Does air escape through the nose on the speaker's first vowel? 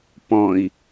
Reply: yes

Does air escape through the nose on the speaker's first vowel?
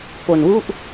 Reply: no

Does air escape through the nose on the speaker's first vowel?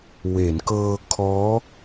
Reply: no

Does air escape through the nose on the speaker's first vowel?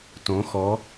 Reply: yes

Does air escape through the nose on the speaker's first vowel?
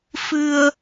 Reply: no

